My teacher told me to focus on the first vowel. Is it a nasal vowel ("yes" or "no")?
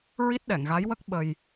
no